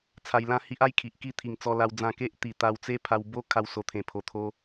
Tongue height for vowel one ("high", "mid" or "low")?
low